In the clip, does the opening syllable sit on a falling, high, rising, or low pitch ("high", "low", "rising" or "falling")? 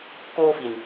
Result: high